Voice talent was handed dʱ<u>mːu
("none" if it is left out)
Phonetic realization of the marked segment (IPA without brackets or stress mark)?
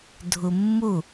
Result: u